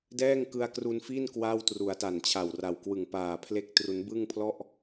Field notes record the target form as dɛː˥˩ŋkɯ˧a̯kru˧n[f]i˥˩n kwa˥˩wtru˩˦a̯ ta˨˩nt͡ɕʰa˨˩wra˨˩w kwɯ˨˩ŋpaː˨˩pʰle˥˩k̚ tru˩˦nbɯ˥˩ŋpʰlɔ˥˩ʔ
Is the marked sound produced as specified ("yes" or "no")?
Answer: yes